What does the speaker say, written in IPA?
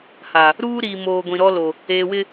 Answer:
h a˨ | ɾ uː˦ ɾ iː˨ m oː˨ ɡʷ ĩ˨ ɾ ɔ˦ l o˨ | eː˨ w ɪ˦

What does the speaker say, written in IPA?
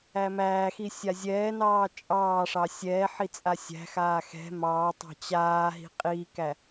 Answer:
æ m æː x i sʲ a zʲ ɛː n ɑː t͡ʃʼ ɑː ʂ ɑ sʲ ɛː ħ i t͡sʼ a sʲ æ̤ x aː x ɛ̤ m ɑː tˤ ɑ̤ t͡ɕ aː ɦ i̤ qʼ i k æ

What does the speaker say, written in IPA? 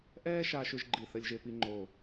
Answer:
ʔ ɛː˥ ʃ aː˧ ʃ ʏ˧ ʒ ɡ͡ǃ i˧˩ θ ə˧ lʲ ʒ e˧ p i˧ ŋ͡ǃ o˧˩

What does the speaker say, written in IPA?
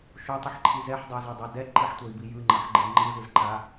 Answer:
ʃ o tˤ ɯ ħ ǃʰ i z ɛ ħ dˤ ʌ u̯ z ʌ dˤ a d ɛ ǃ i ħ tʷ ʌ i̯ b i j ɯ ŋ͡ǃ ʌ ħ ɡ͡ǃ ɛ ŋ͡ǃ ɯ z ɯ z ǃ a

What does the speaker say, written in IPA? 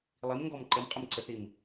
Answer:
lˠ i m ŋ ɡ ɔ m ǃ ə m qʼ ə m ǀ ə θ i m

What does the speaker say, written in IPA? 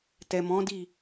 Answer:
t ɛ˨ m ɔ̃˨˦ d i˦˨

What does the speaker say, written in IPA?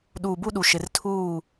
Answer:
ɗ uː˨ b u˦ ɗ u˨ ʃ ɪ˨ r tʰ uː˦˨

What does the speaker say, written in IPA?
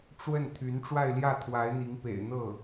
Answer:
ʈ͡ʂ w ə˥˩ n t̪ʰ y˧˥ n ʈ͡ʂ w a˥˧ ɪ̯ l j ä˥˩ t̪ʰ w a˧˥ ɪ̯ n̪ i˧˥ ŋ p ḛ˨˩ ɪ̯ n̪ ɤ˥˩

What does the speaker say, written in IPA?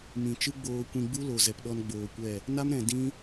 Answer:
m ĩ˨ t͡ʃ ɨ˦ ɡ͡b oː˧ kʷ ĩ˧ ɡ͡b u˦ l o˨ z ɛ˧ p ɗ ɔ˦ n ɡ͡b oː˧ kʷ ɛ˦˨ | n a˦ m ɾ ɛ̃˨ d ĩ˦

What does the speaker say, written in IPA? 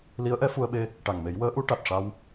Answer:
l i˧˥ ə̯ ʔ ɛ˧˥ f u˧ ə̯ ɓ e˧ | ʈ a˨˩ ŋ m e˨˩˦ j w əː˧˥ ʔ u˧˥ ʈ a˨˩ t̚ ʂ a˧ w

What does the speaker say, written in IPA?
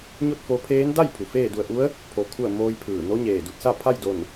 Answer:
ɲ o˥˨ t̚ f o˧ pʰ eː˧˥ n d a˥˨ j pʰ u˩ f eː˥˨ d u˧˩ ə̯ ʔ u˧˥ ə̯ | pʰ o˧ kʰ u˥˨ ə̯ m oː˧ j pʰ ɯː˧˩ n o˧˥ ɲ eː˧˩ d u˧˩ t̚ s a˥˨ pʰ a˥˨ j d o˧˩ n

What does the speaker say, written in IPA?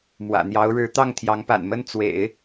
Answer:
m w ä̰˨˩ n̪ j ɑ˧˥ ʊ̯ ɻ ɻ̩˧˥ t̪ ɑ˥˩ ŋ t̪ʰ j ɑ˧˥ ŋ p a̰˨˩ n m ə˥˩ n t͡s w ḛ˨˩˦ ɪ̯

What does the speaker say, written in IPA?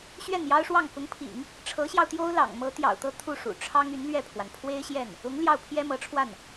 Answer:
ɕ ɥ ɛ˥˩ n j ɑ˥ ʊ̯ ʂ w ɑ˥˩ ŋ k ʊ˧˥ ŋ pʰ ḭ˨˩˦ ŋ | ʈ͡ʂʰ ɤ˧˥ ɕ j ɑ˧ ʊ̯ t̪ j o˥ ʊ̯ l ɑ̰˨˩ ŋ m ɤ˧˥ t̪ j ɑ̰˨˩ ʊ̯ t̪ ɤ˥˧ t̪ʰ u˥˩ ʂ ṵ˨˩ ʈ͡ʂʰ ɑ˥ ŋ y˧˥ n l ɥ ɛ˥˩ pʰ w a˩ n pʰ w e˥ ɪ̯ ɕ j ɛ˥˩ n | ʊ˧˥ ŋ l j ɑ˥˩ ʊ̯ pʰ j ɛ˥ m ɤ˧˥ ʈ͡ʂʰ w a˥˩ n

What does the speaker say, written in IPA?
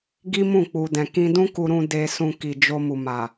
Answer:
ɡ i˦ m ũ˦˨ k͡p u˨ d ɛ̃˨ k ĩ˧ d ũ˦ k u˧ ɾ ũ˧ d e˧ s ũ˧ k i˨ d͡ʒ o˧ m u˨ m a˨

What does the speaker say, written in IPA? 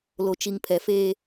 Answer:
l o˨ t͡ʃ i˨ ŋ pʰ ɛ˨ f eː˦

